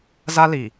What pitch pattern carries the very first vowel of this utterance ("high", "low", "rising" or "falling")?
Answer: high